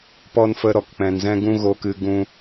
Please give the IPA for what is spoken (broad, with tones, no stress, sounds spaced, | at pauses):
p ɔ˧ n f ə˧ ɾ ɔ˨ k k͡p ɛ̃˨ n z ɛ̃˦ ɡ ũ˦ ɣ o˧ k ɨ˧ ɡ ũ˧